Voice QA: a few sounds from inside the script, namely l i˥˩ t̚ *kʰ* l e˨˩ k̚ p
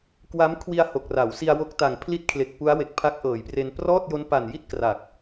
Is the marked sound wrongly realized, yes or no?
no